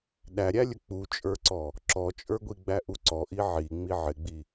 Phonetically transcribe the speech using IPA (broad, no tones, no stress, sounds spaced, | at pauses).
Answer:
ɗ æ ɾʲ æ lʲ ə k͡p u t͡ʃʼ ə˞ ǀ ɔ | ǁ ɔ t͡ʃʼ ə˞ ɡʷ i ɡ͡b æ ʔ u ǀ ɔ ʔ i ʕ i ŋ͡m i ʕ ɪ ɡ͡b i